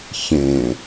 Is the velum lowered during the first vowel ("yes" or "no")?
yes